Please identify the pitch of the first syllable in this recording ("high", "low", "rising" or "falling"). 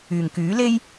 low